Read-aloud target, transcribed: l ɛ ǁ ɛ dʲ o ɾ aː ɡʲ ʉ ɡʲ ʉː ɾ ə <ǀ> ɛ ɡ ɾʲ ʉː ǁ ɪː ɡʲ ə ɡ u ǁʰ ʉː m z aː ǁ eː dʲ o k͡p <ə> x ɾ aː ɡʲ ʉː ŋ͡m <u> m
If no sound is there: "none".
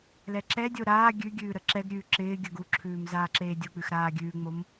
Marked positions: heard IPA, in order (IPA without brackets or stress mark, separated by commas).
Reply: ǁ, ʉ, o